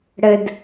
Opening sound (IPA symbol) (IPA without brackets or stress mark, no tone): ɽ